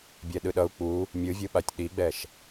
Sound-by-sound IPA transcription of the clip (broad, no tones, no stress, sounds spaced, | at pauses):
bʲ ɛ ɗ ɯ ɗ ʌ u̯ k͡p u | mʲ ɯ vʲ ɯ ɓ a tʲ ɗ i ɡ͡b ɛ ʃ